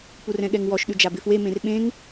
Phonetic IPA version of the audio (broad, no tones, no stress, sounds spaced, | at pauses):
p u r ɛ̃ ɠ ɛ ŋ w ɔ ʃ ɗ ʉ d͡ʒ a b ɪ f w e m ẽ r ɓ ẽ ŋ